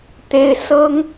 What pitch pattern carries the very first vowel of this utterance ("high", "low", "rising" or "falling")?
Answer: high